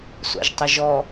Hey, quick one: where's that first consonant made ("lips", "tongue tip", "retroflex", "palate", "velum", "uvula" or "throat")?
tongue tip